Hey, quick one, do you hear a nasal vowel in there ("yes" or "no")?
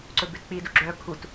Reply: no